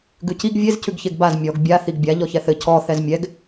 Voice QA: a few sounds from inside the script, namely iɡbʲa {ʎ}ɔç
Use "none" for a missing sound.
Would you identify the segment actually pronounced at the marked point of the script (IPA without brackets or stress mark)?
ʎ